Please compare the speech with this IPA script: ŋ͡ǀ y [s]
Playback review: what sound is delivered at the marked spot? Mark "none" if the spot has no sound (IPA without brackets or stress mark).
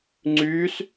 s